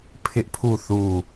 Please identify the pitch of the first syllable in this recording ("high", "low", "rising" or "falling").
high